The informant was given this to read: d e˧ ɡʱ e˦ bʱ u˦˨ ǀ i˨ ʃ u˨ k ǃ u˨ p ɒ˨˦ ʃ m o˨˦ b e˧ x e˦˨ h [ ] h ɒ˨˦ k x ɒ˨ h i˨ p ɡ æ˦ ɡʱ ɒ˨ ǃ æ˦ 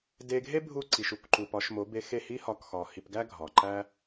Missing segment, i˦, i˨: i˦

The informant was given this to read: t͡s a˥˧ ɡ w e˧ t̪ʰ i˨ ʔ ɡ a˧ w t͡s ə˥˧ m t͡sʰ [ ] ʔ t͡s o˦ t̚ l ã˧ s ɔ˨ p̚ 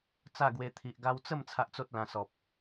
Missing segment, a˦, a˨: a˦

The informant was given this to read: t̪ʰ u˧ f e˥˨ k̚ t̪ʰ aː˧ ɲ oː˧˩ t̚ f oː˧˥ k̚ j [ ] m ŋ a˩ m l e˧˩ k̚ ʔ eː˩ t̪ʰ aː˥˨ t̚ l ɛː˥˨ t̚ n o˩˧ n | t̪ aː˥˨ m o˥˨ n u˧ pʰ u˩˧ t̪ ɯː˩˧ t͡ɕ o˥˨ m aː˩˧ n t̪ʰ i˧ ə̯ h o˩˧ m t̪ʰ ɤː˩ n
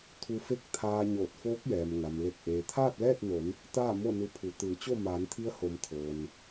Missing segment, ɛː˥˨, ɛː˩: ɛː˩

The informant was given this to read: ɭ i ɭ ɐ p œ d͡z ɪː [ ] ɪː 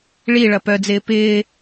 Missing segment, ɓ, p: p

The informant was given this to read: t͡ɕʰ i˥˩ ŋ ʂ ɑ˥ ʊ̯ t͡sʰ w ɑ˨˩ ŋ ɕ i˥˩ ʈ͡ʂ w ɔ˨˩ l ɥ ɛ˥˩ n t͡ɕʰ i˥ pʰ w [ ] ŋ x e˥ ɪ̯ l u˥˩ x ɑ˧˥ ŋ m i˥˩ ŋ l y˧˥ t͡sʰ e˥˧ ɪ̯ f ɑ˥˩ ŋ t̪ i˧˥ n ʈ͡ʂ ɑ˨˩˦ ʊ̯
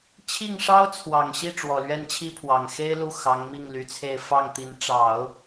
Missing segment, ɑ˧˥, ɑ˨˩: ɑ˨˩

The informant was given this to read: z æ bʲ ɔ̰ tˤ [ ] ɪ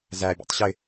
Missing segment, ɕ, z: ɕ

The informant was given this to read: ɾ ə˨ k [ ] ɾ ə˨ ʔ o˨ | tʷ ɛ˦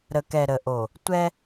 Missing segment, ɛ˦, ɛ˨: ɛ˨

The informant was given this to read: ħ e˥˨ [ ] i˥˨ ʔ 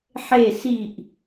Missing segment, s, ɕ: s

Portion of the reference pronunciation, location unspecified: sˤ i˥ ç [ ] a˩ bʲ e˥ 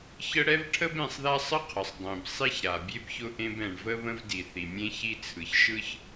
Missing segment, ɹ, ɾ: ɾ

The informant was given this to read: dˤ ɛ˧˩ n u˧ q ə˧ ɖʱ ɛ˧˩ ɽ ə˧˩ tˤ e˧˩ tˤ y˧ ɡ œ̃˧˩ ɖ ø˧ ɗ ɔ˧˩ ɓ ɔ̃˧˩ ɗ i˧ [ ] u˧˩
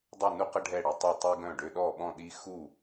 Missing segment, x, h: x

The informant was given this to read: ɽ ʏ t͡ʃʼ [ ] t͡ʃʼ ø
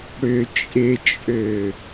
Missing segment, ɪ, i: ɪ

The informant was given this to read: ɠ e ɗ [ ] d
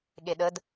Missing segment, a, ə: ə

